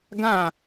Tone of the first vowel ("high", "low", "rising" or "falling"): falling